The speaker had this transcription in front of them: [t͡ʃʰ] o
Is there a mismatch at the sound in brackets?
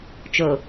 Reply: yes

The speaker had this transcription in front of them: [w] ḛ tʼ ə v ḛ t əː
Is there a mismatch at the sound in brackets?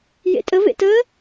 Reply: yes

